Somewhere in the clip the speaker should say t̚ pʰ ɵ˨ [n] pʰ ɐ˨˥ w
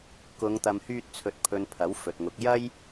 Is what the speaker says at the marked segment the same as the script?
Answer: yes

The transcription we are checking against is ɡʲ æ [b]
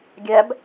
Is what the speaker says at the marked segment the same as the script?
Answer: yes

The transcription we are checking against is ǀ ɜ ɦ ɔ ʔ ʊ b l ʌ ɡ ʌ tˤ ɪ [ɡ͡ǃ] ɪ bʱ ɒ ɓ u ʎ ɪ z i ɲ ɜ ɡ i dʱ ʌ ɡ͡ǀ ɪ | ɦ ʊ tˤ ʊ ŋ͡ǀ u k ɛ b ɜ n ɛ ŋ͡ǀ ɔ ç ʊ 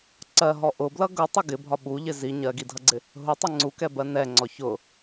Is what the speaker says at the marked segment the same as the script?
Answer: no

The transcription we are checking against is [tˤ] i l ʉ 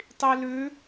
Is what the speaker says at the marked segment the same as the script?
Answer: yes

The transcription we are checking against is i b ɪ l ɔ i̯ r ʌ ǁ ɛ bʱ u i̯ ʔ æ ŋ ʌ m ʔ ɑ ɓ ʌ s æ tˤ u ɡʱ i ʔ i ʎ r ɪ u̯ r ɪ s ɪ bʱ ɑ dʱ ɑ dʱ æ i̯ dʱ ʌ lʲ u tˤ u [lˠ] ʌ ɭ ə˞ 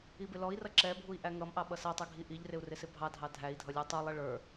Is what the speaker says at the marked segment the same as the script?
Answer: yes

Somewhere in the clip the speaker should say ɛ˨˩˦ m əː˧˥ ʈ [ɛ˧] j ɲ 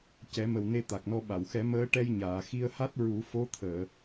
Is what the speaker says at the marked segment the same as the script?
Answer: yes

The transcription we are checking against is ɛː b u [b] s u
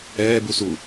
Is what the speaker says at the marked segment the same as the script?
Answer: no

